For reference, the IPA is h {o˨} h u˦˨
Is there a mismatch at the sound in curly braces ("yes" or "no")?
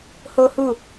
yes